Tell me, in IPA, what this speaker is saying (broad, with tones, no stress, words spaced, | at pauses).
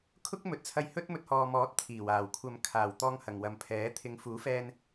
kʰʊ˥k̚mɵ˨t̚t͡sʰɐ˧j hɵ˥t̚mɵ˧t̚hɔː˨mɔː˨˥t̚ t̪ʰiː˨˩waː˨˩wkʷʰɐ˧m kʰaː˨˩wt̪ɔː˧ŋ hɐ˨ŋwɐ˨mpʰɛː˨˥ t̪ʰɪ˨˧ŋfuː˨˥fɛː˧n